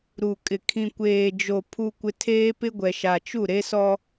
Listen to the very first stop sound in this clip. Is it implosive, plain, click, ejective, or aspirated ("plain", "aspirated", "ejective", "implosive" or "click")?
ejective